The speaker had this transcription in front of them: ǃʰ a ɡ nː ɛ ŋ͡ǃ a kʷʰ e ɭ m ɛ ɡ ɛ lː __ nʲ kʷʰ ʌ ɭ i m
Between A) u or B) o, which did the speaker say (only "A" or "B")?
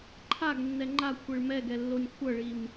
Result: B